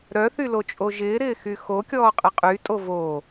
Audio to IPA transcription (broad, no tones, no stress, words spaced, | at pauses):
ɾœθylot͡ʃʼo ʒɪːɾɪːxy xokʲɔːqʼɪ qʼytʼo voː